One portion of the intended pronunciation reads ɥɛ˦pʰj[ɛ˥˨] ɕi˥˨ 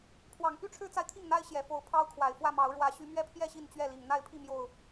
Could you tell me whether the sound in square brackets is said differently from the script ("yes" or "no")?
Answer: no